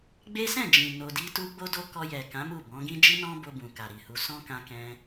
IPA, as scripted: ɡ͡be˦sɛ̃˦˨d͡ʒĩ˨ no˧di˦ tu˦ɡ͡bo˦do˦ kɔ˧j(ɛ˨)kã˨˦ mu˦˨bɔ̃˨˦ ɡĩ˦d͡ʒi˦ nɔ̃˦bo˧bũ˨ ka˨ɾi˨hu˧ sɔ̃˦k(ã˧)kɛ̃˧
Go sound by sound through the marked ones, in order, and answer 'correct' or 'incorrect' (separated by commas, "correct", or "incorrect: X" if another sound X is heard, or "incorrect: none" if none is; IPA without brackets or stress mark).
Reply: correct, correct